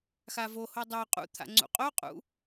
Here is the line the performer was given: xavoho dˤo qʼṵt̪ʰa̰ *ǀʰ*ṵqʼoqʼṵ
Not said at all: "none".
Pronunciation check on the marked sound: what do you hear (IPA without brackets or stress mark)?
ŋ͡ǀ